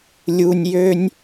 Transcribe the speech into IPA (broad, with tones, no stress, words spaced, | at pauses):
lʲu˥nʲ jø˥nʲ